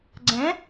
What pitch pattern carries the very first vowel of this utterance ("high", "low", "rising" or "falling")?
rising